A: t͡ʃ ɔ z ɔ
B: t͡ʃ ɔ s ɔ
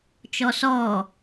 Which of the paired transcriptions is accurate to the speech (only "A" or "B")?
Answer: B